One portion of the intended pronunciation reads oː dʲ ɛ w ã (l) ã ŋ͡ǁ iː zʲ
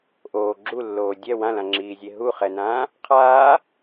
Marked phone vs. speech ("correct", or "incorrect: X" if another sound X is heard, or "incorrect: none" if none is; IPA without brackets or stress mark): correct